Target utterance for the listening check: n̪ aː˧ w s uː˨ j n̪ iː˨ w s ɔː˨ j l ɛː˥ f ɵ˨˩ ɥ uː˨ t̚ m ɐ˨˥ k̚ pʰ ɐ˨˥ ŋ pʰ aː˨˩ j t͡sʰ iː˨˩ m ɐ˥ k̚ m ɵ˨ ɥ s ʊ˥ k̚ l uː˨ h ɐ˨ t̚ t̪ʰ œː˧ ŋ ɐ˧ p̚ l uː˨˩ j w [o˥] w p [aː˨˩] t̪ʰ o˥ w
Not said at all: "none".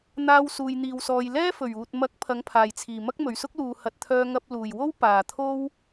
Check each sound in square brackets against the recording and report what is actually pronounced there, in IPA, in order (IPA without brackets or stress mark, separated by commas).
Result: o˥, aː˨˩